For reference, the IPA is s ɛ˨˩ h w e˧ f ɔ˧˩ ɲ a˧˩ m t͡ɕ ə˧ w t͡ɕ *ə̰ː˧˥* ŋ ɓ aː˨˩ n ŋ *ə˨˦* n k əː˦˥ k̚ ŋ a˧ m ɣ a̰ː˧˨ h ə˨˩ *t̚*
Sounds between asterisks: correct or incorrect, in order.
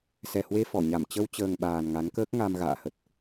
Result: incorrect: əː˨˩, incorrect: a˨˦, correct

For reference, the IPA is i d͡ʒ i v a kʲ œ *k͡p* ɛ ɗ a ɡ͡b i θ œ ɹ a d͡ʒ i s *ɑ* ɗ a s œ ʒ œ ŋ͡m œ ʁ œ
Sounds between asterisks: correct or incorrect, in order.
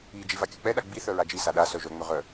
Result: correct, incorrect: a

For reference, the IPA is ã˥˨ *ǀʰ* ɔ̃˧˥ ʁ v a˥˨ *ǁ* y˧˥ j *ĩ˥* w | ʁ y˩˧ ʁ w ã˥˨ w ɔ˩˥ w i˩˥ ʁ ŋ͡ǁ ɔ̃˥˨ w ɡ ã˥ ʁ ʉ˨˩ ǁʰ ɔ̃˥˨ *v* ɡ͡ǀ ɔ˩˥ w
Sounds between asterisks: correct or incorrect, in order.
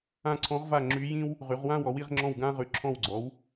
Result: correct, incorrect: ŋ͡ǁ, correct, incorrect: w

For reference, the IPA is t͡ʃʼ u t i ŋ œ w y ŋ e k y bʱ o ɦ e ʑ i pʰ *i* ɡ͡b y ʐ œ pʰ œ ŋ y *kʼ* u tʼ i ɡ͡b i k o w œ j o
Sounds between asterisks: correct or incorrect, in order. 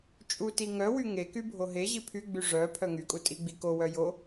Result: incorrect: y, correct

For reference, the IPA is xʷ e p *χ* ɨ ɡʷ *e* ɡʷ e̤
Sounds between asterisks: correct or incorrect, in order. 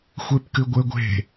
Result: incorrect: k, correct

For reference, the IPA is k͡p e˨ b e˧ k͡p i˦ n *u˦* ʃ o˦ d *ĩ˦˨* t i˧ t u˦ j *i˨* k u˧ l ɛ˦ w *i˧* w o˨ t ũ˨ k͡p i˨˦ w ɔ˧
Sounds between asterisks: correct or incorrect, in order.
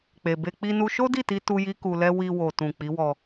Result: correct, incorrect: i˦˨, incorrect: i˦, correct

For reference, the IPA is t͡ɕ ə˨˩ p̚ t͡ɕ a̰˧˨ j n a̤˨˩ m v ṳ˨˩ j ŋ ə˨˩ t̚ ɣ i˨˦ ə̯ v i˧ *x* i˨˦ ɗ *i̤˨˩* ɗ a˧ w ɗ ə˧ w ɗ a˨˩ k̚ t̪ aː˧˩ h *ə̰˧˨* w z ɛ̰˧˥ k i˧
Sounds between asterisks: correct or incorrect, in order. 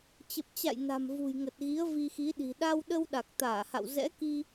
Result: correct, correct, incorrect: a̰˧˨

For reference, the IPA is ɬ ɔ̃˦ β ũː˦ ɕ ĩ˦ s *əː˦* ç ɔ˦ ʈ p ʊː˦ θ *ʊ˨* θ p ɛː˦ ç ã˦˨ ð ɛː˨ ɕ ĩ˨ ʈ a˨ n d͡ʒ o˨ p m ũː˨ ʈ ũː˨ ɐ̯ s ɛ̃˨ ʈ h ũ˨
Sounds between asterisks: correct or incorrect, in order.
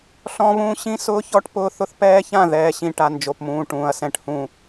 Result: incorrect: ʊː˦, incorrect: ʊ˦

